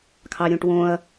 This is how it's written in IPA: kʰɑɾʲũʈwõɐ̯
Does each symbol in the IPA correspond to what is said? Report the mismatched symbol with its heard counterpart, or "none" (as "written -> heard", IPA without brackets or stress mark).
none